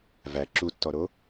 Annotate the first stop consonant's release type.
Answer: click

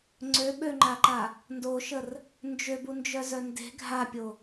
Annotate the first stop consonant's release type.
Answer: click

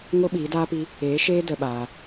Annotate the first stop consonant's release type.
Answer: implosive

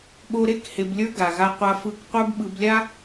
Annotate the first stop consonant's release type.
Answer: implosive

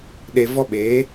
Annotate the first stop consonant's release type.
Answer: implosive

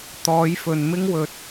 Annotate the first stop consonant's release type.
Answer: plain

